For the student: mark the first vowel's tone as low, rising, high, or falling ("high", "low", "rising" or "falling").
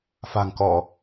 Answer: low